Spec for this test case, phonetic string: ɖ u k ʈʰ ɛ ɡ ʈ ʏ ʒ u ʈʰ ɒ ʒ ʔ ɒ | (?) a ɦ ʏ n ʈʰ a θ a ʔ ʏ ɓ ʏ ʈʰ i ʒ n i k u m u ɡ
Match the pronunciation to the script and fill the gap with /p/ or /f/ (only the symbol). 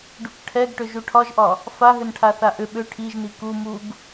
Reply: f